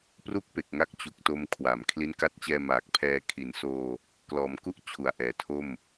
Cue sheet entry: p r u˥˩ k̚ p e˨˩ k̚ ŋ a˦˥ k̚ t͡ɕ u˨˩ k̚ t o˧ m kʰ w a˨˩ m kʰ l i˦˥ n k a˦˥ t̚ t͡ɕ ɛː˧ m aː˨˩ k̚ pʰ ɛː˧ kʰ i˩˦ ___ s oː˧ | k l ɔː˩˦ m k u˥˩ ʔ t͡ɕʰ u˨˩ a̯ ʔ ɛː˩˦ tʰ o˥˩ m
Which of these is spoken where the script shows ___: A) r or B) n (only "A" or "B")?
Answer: B